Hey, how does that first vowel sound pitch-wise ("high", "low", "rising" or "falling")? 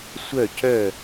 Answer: falling